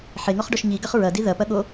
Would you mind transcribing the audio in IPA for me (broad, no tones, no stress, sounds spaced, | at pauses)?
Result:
ħ e ŋ ɔ χ ɖ ɔ ʃ ɲ i ɡ ɐ χ ɹ ɐ d i ð ɐ p ɐ ɠ o